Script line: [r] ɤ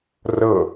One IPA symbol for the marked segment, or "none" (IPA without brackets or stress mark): r